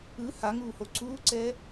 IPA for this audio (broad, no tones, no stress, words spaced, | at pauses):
ɯ haŋuːho ǀuːǀɛ